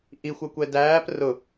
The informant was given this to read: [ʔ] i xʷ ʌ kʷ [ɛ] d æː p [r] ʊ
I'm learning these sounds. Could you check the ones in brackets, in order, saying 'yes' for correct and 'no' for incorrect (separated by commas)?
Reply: yes, yes, yes